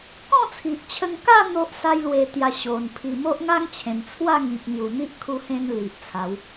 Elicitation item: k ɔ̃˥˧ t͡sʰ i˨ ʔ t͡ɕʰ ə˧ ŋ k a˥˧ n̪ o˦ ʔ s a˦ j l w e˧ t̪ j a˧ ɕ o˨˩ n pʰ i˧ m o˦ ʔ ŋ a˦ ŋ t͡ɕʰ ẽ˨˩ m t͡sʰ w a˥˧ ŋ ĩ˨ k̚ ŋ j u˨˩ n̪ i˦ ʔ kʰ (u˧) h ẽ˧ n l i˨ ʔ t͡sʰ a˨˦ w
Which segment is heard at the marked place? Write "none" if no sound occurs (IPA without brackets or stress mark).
u˧